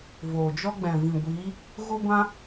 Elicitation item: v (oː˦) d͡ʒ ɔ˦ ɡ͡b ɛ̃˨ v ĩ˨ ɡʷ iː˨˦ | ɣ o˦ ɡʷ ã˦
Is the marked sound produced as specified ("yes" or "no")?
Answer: no